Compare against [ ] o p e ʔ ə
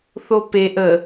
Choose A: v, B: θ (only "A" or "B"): B